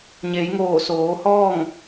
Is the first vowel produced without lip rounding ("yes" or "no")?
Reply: yes